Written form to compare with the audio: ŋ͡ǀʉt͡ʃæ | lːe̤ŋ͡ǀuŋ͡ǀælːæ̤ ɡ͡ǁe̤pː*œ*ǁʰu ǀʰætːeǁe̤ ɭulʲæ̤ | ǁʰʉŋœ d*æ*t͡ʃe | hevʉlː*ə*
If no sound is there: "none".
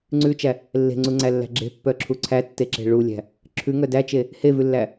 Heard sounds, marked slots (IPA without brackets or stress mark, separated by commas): œ, æ, æ